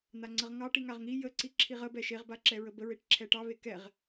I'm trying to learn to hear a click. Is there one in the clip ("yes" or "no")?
yes